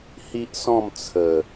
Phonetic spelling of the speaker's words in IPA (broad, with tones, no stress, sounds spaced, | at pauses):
h i˦ ʔ s ɔ̃˥˧ m t͡sʰ ə˨˩